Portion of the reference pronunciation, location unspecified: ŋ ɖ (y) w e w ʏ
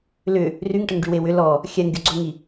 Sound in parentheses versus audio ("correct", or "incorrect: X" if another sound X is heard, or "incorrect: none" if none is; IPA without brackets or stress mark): correct